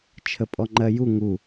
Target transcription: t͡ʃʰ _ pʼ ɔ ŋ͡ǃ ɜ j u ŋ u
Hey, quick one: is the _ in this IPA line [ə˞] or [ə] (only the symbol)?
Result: ə